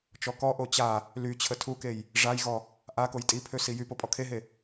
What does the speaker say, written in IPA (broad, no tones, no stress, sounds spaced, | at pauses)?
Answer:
t͡ʃ ɔ k ɔ ʔ o t͡ɕ a | l y t͡ɕʰ ə tʰ u k e j | ʐ a j ɣ ɔ | ʔ a k o j tʼ i pʰ ø s i j y p o pʼ ɔ kʰ e ɦ e